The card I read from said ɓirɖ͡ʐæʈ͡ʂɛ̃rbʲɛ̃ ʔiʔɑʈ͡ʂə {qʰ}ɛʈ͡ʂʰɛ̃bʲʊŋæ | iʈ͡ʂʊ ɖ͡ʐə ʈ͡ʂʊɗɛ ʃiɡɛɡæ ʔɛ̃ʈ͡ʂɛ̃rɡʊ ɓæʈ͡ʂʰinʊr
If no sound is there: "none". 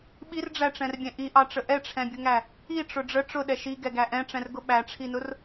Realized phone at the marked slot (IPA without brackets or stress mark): ʔ